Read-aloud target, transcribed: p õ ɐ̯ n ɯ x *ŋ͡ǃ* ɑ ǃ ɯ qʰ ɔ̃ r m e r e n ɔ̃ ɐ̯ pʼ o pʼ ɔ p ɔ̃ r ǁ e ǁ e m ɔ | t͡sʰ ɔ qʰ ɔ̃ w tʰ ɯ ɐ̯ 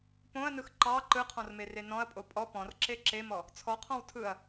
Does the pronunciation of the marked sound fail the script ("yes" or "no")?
yes